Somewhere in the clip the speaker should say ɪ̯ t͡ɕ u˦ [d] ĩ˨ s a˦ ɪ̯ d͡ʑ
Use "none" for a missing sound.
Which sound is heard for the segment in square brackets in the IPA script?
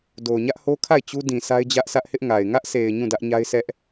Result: d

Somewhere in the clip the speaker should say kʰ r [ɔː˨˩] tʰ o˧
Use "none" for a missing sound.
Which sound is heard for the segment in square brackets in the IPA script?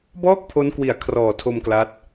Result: ɔː˨˩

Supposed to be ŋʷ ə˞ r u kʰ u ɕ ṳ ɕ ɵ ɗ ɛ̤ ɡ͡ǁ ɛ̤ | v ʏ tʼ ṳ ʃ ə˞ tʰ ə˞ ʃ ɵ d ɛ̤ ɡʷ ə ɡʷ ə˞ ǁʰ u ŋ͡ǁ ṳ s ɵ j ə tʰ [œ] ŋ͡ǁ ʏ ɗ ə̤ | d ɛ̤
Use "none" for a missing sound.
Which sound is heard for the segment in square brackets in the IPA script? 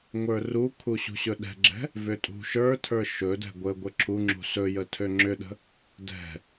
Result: ø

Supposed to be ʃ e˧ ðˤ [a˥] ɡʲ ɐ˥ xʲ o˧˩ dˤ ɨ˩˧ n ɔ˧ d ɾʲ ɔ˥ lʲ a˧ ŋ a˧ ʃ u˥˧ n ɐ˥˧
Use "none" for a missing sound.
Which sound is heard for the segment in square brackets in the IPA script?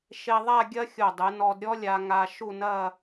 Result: a˥˧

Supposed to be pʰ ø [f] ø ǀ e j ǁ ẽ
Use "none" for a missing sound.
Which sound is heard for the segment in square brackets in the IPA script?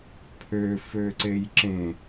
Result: f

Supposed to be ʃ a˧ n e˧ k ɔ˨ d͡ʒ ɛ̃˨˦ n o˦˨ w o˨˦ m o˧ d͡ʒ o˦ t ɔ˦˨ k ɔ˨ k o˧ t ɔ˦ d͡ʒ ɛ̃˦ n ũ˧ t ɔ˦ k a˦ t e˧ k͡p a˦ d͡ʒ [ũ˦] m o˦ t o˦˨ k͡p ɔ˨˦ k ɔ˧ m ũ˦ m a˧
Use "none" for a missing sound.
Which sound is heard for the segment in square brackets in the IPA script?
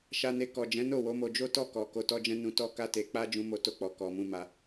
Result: ũ˦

